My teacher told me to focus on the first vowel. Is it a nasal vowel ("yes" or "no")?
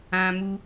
yes